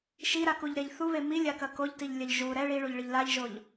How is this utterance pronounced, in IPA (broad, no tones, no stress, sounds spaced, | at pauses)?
ʃ i ɾ a k u ʎ ɾ e ʎ θ u β e m i lʲ a k ɐ k o ʎ t i ʎ lʲ ɐ ʎ ʒ u ɾ ɛ ɭ i ɭ u ʎ ɭ ɨ ʎ l a ʎ ʒ o ʎ